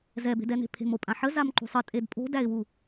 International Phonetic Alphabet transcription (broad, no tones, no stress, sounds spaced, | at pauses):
z ɛ b e̤ d ɛ n e̤ pʰ e̤ m o pʼ ã ħ ə z a m ǃ ṳ sˤ ə tʼ e d pʼ o̤ d æ ɪ̯ w u